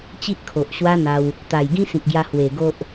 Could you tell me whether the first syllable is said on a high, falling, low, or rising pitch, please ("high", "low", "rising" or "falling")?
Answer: high